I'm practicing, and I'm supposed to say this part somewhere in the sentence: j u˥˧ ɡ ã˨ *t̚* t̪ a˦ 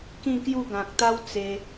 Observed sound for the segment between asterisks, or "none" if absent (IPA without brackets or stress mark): k̚